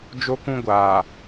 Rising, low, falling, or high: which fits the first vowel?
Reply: high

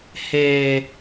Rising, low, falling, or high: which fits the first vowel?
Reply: high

